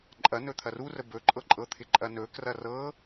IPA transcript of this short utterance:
ǃʼ ɐ n ɵ t̪ʰ ɐ r u r ə b ɵ ǃʼ ɤ ǃʼ ɤ t̪ʰ ɪ ǃʼ ɐ n ɵ k r ɐ r ɤ

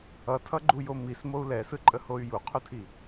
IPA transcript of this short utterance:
ʌ tʰ ʌ ɡ͡ǃ u j o m i s m o u̯ l ɛ s ɯ ǃʼ ə h o y̯ j u qʰ u tʰ i

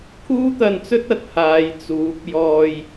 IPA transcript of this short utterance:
kʰ uː˥ t̪ ɐ˧ n t͡s ɵ˥ t̚ ɐ˧ t̚ h aː˨˧ j t͡s uː˨˥ p̚ j ɔː˧ j

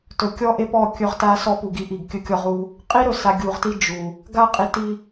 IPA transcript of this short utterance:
t ɵ˨ kʲ ɔ˦ ʔ e˦ p ɔ˦˨ kʲ ɵ˦ ʁ t a˦ s ɔ˦ p u˨ ɡ i˦ ʔ i˨ ɡ kʲ ɵ˦ kʲ ɔ˦ ʁ u˦ | qʼ i˦ ɾ ɵ˨ s a˨ ɡʲ u˨ ʁ t i˦ d͡ʒ u˨ | ɡ a˦ qʼ i˨ t i˨

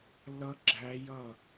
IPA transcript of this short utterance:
lː ʌ˦˥ ɡ͡ǁ æ˦˥ j ʌ˥˨

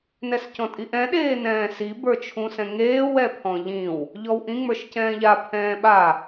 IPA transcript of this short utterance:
n ɛ s c ɔ̃ tʼ i ʔ ɛ̃ ɗ eː n ɛ̃ː s i b ə˞ t͡ʃʰ ũ s ɛ̃ ŋ eː w ɛ pʰ ɔ̃ ʎ ĩ w | ʎ ɔ w ʔ ĩ ŋ͡m ə˞ ʃ c ɛ̃ː ʎ a pʰ ɛ̃ː ɓ a

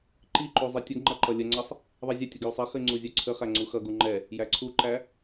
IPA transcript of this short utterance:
ǃ i ǃ u zˤ i tʲ ə ɡ ŋ͡ǃ ʌ ǃ ʌ lʲ ə ŋ͡ǀ ʌ sˤ | ðˤ i zʲ ə tʲ ə ɡ j u sˤ ɛ χ i ŋ͡ǀ u zʲ u ǀʰ ə χ æ ŋ͡ǀ u x ʌ ɡ u ŋ͡ǃ ɛ | j æ ǀʰ u ǃ æ

